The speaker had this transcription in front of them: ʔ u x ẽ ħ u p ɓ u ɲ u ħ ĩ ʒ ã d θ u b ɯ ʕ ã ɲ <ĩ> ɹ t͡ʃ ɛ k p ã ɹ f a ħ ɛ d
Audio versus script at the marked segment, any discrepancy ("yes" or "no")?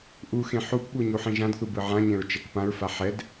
yes